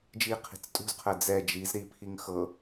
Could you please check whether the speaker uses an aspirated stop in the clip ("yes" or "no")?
yes